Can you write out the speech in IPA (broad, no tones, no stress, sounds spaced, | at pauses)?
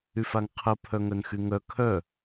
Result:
y f a ŋ qʰ ə pʰ œ ŋ œ n x y ŋ œ kʰ œ